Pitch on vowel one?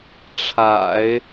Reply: low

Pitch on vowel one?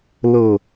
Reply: falling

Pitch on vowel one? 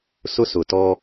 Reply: high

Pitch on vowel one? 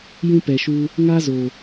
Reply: high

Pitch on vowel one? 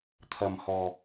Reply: low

